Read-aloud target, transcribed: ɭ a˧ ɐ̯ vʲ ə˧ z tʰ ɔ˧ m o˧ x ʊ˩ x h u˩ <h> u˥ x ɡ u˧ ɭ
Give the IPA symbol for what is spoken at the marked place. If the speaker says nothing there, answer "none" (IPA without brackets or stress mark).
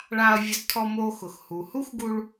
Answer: h